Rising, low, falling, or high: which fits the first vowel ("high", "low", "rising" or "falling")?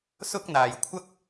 high